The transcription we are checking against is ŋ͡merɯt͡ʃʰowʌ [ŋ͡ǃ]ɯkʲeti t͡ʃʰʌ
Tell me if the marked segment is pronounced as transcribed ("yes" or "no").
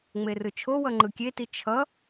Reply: yes